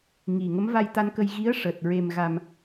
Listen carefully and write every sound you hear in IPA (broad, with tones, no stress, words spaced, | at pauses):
ŋi˨˩ ŋə˧˥mva˧jt̪a˧nkə˧j ɣi˧˥ə̯ʂəː˨˩t̚ ɹe˨˩mɣa˨˩m